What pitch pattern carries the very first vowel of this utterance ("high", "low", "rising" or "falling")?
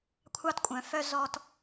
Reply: high